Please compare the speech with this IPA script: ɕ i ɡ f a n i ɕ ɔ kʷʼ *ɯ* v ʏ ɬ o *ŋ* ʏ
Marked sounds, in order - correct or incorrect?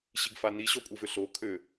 correct, incorrect

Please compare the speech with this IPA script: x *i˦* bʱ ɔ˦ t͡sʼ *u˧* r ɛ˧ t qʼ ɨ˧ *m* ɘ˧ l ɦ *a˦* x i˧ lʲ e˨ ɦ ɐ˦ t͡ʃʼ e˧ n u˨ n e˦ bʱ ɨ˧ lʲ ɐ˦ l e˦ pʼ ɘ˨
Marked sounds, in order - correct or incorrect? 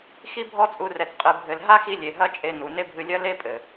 correct, correct, incorrect, correct

